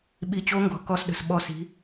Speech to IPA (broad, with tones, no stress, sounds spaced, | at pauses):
ɓ i˧˩ t͡ɕ o˧˥ ŋ ɡ ɔ̤˩˧ k ɔ˥ s ɗ ə̤˧˩ s ɓ ɔ˥˩ s i̤˧˥